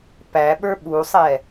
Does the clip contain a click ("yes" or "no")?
no